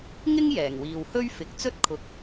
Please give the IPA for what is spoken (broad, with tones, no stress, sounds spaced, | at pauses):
ŋ ɪ˥ ŋ j ɛː˨˩ ŋ w iː˨ w h ɵ˥ ɥ f ɪ˨ k̚ t͡s ɵ˥ t̚ kʰ ʊ˨˥ k̚